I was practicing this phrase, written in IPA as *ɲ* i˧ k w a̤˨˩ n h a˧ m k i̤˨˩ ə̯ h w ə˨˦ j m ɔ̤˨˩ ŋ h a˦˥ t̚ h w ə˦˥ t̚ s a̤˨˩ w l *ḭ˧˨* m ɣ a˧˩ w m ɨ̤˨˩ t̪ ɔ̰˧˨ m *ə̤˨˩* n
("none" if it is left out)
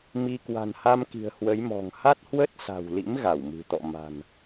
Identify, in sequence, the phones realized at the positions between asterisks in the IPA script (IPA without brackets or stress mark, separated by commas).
m, ḭ˧˥, a̤˨˩